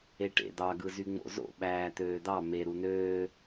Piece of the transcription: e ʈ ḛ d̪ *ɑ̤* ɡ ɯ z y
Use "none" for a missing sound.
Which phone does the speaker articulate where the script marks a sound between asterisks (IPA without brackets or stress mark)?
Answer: ɑ